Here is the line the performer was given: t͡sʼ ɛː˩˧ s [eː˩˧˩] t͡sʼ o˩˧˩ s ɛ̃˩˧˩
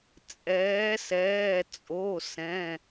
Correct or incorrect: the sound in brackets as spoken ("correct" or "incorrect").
incorrect